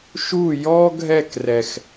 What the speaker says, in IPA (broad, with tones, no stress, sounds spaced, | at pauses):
ʃ u˥˧ j ɔ˥ ɡʱ ɛ˥˧ k r ɛ˥˧ x